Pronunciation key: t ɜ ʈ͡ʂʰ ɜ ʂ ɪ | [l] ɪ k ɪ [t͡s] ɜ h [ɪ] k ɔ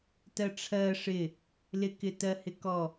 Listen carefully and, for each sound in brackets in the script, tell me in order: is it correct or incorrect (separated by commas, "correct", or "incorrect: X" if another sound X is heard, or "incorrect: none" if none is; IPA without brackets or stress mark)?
correct, incorrect: t, correct